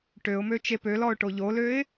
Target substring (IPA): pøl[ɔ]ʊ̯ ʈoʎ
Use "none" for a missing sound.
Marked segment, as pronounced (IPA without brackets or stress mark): ɔ